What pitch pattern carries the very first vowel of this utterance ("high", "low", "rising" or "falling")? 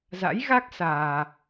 rising